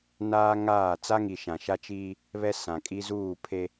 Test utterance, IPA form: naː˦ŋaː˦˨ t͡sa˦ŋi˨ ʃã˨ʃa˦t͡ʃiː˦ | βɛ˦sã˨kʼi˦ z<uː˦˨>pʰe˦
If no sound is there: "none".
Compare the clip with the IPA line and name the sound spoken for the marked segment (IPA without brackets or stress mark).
uː˦˨